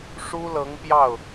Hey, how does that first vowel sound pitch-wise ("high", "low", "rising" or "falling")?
high